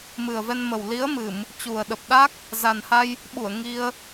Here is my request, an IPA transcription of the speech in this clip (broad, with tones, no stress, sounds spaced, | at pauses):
m ɨ˨˩ ə̯ v ɛ˧ n m ə˨˩ w l i˨˦ ə̯ m ɨ˧˩˨ m | t͡ɕ u˨˩ ə̯ ɗ ə˨˩ p̚ ɗ a˦˥ k̚ | z a˨˩ n h a˧ j | ɓ u˧˩ ə̯ ŋ i˧ ə̯